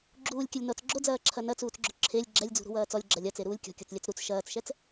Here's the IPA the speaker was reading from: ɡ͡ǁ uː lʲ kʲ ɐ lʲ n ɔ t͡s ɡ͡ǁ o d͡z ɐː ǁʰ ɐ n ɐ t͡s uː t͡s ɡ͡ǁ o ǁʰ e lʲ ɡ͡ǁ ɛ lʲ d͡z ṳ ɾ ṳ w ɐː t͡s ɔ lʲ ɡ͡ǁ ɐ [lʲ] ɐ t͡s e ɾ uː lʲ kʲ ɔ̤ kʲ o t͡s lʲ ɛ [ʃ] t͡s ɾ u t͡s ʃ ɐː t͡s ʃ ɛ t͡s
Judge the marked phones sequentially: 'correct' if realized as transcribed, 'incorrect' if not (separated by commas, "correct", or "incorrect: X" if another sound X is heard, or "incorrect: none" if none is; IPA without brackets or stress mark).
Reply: correct, incorrect: none